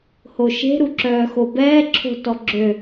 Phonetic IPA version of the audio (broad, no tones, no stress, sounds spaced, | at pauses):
h o ʃ e̤ ɾ u ǁ œː x o b ɛː ǁʰ o̤ t ɔ ɡ͡ǁ ø